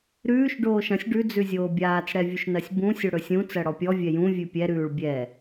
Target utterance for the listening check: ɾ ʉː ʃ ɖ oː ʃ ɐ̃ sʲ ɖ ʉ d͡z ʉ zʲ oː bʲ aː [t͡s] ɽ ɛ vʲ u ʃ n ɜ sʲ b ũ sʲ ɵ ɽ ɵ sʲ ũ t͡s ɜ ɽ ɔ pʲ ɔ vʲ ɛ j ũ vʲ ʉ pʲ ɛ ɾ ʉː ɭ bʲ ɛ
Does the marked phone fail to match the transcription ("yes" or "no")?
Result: no